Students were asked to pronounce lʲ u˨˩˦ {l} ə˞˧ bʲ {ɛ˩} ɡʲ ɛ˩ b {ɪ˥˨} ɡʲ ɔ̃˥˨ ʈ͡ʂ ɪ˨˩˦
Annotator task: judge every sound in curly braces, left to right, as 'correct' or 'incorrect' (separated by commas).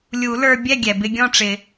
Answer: correct, incorrect, incorrect